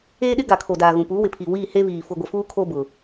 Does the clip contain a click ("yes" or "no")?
no